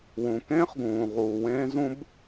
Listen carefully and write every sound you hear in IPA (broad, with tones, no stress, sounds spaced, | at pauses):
w ũ˩ k ẽː˥ χ ɡ ũː˩ ʁ uː˩ w ẽː˥ z ũ˥ b